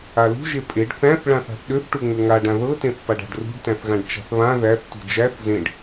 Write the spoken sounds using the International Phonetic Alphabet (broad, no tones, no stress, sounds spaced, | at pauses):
a l ṳ ʒ e pʼ e ɖ θ æ̃ θ ɭ ã θ a̤ θ ɗ ø θ ʈ u ŋ͡m ø ŋ a ɖ ã ð ɤ t ẽ θ p a ɖ a̤ ɖ r ṳ ɖ t æ̃ θ ɣ ã ɖ t͡ʃ a̤ θ β ã ð æ θ t ṳ d͡ʒ æ θ z ẽ ɖ